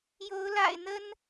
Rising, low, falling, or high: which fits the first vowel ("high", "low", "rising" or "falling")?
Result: rising